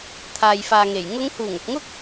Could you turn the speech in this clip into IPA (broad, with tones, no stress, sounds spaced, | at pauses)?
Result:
t̪ʰ aː˨ j f aː˨ ŋ e˨˩ j ŋ ʊ˨˧ ŋ h uː˨˩ ŋ ʊ˨ k̚ ŋ ʊ˥ k̚